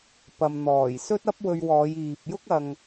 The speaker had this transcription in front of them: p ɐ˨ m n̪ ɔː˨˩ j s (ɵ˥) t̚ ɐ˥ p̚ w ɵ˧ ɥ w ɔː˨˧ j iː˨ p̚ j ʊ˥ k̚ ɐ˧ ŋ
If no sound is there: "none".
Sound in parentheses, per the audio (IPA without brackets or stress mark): ɵ˥